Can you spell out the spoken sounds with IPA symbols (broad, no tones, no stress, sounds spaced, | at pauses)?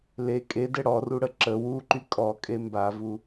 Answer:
l e kʼ e d ɛ ɽ ɔ r u ɽ ə ǁ ə w u ǃ y kʼ ɔ kʼ e m b a v u